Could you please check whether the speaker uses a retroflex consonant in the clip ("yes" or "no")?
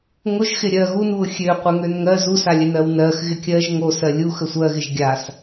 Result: no